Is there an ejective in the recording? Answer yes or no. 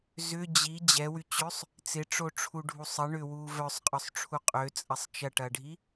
yes